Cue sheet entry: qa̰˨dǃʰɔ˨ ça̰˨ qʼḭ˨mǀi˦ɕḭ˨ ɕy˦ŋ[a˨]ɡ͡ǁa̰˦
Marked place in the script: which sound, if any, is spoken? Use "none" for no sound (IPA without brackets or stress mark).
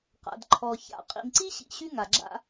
a˨